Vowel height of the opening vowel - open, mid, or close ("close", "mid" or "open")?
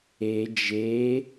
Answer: mid